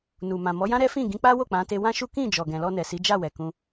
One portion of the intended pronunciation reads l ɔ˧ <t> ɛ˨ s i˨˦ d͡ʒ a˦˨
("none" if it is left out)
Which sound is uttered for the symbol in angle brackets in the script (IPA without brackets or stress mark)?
n